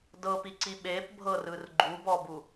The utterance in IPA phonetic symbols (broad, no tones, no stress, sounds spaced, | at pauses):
d ɤ p i ǀ i ɓ e p bʱ ɤ r ɯ r ɡ͡ǃ u b ɔ b u